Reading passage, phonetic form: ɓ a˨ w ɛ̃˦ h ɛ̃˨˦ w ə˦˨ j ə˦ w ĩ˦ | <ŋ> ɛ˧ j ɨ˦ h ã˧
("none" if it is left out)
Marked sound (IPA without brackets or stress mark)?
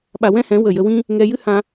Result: ŋ